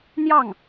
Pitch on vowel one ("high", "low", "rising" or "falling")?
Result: falling